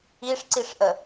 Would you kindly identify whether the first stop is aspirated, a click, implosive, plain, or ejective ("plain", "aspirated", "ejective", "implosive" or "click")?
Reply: click